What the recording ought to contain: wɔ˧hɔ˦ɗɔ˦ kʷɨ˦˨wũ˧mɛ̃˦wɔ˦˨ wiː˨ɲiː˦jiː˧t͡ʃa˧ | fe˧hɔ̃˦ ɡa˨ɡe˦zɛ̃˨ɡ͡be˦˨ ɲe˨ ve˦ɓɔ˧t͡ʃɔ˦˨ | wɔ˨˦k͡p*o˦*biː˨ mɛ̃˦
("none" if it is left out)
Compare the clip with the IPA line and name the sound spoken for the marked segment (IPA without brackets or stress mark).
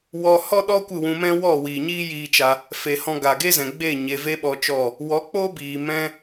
o˦